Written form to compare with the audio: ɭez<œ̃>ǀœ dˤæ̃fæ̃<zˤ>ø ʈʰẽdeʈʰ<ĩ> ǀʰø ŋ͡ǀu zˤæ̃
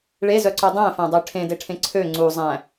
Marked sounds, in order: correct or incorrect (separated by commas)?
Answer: incorrect, incorrect, incorrect